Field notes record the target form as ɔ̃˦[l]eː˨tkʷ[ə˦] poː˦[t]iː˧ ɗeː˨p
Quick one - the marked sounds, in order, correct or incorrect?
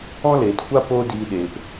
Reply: correct, incorrect: a˦, incorrect: d

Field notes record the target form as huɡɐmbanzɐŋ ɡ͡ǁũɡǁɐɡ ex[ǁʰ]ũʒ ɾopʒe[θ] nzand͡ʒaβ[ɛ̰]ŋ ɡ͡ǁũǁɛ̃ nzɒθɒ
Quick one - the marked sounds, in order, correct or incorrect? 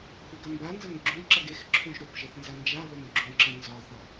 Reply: correct, correct, incorrect: ɛ

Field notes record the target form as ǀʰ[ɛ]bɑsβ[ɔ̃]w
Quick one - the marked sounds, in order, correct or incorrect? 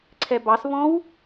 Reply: correct, correct

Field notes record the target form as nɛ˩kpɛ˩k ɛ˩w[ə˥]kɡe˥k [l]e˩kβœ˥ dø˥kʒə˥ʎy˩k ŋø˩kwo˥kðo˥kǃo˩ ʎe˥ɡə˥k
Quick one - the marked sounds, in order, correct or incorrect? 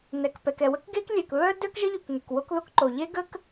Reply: correct, incorrect: lʲ

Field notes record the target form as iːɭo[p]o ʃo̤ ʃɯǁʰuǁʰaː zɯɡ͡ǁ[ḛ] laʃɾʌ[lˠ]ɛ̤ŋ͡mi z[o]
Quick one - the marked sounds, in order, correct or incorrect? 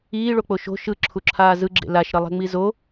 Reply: incorrect: k͡p, correct, correct, correct

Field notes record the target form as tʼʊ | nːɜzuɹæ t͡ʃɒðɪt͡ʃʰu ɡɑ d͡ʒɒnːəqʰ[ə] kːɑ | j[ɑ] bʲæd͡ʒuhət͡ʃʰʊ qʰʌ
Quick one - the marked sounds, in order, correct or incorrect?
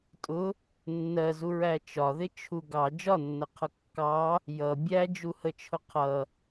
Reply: incorrect: ʌ, incorrect: ʌ

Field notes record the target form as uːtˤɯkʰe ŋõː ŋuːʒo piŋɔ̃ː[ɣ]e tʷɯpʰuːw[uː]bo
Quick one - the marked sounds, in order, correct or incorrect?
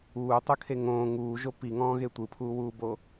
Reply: correct, correct

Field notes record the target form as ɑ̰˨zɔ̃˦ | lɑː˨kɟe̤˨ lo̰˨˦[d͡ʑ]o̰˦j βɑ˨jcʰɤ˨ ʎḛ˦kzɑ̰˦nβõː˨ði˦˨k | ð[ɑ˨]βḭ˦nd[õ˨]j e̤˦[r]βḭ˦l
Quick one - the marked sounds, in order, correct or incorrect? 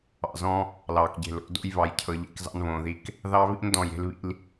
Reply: incorrect: d, incorrect: ɑ˦, incorrect: ɔ̃˨, incorrect: l

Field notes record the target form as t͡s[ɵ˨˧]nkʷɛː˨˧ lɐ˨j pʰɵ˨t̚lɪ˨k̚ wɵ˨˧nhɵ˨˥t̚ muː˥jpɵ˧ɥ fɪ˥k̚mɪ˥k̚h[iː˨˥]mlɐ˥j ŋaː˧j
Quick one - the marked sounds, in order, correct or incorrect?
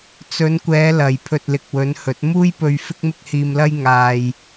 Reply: correct, incorrect: iː˧

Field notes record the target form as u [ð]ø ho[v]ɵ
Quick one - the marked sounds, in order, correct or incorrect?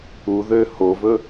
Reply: correct, correct

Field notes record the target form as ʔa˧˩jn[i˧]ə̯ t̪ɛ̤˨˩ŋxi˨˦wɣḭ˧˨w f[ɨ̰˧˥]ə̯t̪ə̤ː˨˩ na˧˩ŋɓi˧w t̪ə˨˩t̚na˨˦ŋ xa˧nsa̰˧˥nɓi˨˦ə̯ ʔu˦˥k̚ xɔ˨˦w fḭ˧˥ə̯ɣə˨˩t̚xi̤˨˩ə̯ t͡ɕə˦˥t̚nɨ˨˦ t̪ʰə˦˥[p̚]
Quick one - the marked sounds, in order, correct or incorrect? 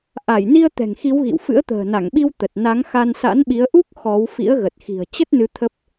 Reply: correct, correct, correct

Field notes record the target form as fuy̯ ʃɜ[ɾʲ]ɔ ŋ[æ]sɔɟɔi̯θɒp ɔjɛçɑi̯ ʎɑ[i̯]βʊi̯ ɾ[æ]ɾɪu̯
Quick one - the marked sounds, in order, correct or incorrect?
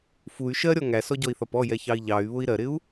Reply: correct, correct, incorrect: y̯, incorrect: ɜ

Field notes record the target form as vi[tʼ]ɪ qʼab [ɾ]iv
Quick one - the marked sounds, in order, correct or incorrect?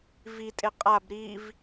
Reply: correct, correct

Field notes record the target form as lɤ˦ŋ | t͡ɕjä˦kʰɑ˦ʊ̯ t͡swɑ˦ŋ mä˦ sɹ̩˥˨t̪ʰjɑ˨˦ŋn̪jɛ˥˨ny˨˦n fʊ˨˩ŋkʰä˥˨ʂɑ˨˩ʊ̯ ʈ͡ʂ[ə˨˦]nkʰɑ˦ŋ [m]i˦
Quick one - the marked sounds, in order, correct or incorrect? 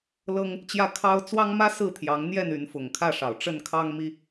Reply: incorrect: ə˥˨, correct

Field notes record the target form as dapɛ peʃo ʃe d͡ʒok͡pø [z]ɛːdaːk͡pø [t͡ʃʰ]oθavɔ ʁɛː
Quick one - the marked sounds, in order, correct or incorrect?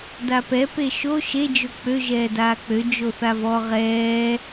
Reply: incorrect: ʒ, incorrect: d͡ʒ

